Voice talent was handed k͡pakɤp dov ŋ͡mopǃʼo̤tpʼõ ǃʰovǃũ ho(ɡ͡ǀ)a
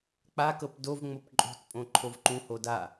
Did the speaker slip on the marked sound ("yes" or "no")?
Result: yes